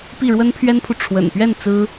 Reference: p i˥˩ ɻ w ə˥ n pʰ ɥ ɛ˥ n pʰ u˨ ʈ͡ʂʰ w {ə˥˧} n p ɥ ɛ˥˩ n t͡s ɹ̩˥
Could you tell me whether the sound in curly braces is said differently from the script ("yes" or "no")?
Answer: yes